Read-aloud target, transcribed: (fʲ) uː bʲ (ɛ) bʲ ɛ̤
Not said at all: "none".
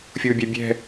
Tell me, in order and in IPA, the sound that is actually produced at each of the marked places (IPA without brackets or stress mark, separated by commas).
fʲ, ɛ